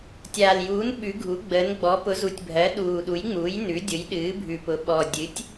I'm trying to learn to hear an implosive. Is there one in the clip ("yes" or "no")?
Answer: yes